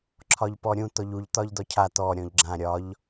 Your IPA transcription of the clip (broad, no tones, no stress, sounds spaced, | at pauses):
ǁʰ ɒ ʎ p ɔ ɾʲ ũ t̪ ɔ ʎ u ʎ t̪ ɒ ʎ d̪ ɔ cʰ a t̪ ɔ ɾʲ ɔ̃ ʎ ɡ͡ǁ ã ɾʲ ɒ ʎ